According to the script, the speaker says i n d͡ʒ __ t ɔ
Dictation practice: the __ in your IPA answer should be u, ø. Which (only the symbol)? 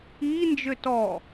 ø